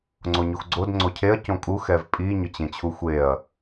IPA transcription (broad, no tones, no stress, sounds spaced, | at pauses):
ŋ͡ǀ o ɲ u x ɡ͡ǀ o d ŋ͡ǀ o cʰ e ɐ̯ c õ kʼ u x ɛ v pʼ i ɲ ʊ t͡ɕ ẽ t͡ɕʰ u xʷ e ɐ̯